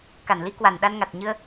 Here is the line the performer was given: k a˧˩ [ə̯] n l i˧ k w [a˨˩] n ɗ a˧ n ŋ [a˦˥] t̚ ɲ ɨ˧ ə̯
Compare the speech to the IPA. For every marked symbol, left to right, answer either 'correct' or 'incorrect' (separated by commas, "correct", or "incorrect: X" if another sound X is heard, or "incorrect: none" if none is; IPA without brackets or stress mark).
incorrect: none, correct, incorrect: a˨˩